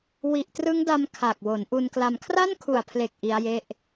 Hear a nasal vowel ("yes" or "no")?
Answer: no